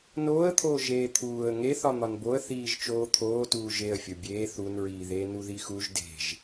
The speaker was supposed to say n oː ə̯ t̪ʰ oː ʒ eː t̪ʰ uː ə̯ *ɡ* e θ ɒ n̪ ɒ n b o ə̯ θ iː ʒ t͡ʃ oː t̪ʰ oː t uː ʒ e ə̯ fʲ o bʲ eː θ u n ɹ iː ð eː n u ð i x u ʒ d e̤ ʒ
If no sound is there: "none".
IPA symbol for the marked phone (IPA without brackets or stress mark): ŋ